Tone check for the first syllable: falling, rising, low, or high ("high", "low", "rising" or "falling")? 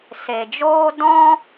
low